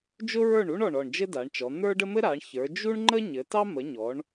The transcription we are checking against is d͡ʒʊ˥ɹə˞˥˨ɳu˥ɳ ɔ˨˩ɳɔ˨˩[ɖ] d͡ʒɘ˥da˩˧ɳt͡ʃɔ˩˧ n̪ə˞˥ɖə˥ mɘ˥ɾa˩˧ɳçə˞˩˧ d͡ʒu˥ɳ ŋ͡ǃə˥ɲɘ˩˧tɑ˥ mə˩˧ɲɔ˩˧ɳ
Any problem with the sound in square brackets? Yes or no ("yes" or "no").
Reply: yes